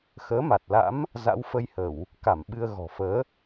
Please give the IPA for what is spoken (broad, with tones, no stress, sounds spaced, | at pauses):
x əː˨˦ m a˨˩ t̚ l a̰˧˥ m | z a̰˧˥ w f ə˧ j h ə˧˩˨ w | k a˧˩ m ɓ ɨ˧ ə̯ ɣ ɔ̤˨˩ f əː˨˦